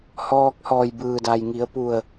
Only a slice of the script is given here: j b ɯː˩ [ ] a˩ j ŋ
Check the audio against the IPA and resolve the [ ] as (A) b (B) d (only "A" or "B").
B